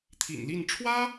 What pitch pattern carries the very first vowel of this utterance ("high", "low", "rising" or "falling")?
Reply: low